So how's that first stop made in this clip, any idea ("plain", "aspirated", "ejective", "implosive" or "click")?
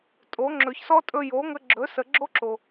ejective